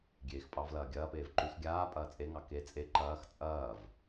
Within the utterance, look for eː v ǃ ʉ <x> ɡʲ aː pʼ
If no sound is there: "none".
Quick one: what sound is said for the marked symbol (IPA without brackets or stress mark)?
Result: x